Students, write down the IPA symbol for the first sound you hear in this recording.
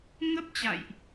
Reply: ŋ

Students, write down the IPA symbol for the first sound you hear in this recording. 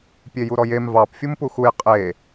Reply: pʲ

